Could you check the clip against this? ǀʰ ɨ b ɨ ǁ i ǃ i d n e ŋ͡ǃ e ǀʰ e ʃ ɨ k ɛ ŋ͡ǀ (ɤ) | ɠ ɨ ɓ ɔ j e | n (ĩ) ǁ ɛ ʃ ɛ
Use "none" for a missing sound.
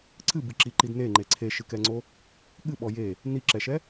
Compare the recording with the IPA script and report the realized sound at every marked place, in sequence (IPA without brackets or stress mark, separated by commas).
o, i